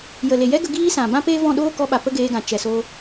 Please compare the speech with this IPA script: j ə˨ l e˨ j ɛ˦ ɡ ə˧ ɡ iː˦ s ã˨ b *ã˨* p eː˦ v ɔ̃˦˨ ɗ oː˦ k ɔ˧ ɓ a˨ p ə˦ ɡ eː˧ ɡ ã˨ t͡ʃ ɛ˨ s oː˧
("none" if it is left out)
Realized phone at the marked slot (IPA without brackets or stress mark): ã˦